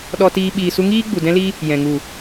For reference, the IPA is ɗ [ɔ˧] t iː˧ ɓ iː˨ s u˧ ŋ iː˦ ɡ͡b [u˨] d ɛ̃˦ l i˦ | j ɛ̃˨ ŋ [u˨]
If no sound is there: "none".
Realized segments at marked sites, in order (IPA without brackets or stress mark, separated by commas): ɔ˧, u˨, u˨